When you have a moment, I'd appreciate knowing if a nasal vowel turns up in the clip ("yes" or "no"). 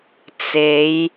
no